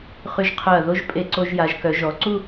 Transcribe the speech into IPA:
χ y˧ ʒ qʰ œ˧˩ ɐ̯ ð o˥ ʒ pʼ e˧ ǀ o˧ ʒ j a˩˧ ʒ k œ˩˧ ʒ ɔ˩˧ ǀ u˥˧

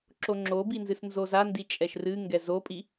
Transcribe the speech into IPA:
ǁ o ŋ͡ǁ o b i n z ɨ s n z o z a n d i t͡ʃʼ ɛ ʃ r ɨ ŋ ɡ ɛ z o pʼ i

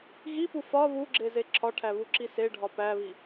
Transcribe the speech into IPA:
ɣ i p u f ɒ β u ɡ͡ǁ e z e ǁʰ ɒ ʈʰ æ β u ǁ i s e ɖʱ ɒ p æ β i

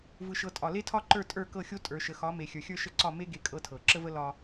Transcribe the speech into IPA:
v ɯ˨ ʃ ɤ˨ tʼ ɒ˨ l e˦ tʰ ɒ˦ ǃ ə˞˦˨ tʼ ə˞˦˨ k ɤ˦˨ xʲ o˦ tʼ ə˞˨ ʃ ə˨ x ɒ˨˦ m e˨ xʲ ə˞˨ xʲ ə˞˦ ʃ ə˦˨ ǀ ɒ˦˨ m e˦ ɡ e˦ kʼ ɤ˦ tʰ ɤ˨ ǁ ə˦ v ə˦ l ɒ˦

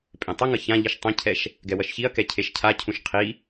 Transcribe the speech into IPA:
pʼ ẽ tˤ ʌ ŋ ʌ ç ã ʎ i ʃ tˤ ĩ cʰ ɛ ʃ | ɡ ɛ w ʌ ʃ ç i ɐ̯ k ɛ cʰ e ʃ cʰ a cʰ ũ ʃ qʰ i

